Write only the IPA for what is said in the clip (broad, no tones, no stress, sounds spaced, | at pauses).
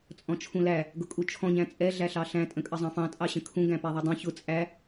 t͡sʼ ɔ̃ t͡ʃʰ ũ l æ | ɡ ʊ kʼ u t͡ʃʰ ɔ̃ ɲ æ̃ t͡sʼ ɛ ɮ æ ɬ ɑ ɬ æ̃ tʼ ə̃ kʼ ə zˤ ɑ̃ f ɑ̃ tʼ ɑ ɕ ə̃ kʰ ũ ɡ æ̃ p æ ðˤ u dˤ ũ ç ʊ t͡sʼ æ